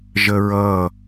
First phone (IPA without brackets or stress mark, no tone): ʒ